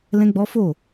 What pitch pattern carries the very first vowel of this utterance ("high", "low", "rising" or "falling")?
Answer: high